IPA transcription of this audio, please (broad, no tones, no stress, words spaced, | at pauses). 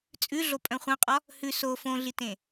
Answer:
t͡sʼʉɮopʼœ̃ χʷœ̃qʼɒ | hʉ so fõɮitẽ